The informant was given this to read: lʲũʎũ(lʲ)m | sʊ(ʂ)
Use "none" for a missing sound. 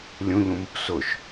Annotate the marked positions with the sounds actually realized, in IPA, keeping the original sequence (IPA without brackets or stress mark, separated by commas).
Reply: none, ʃ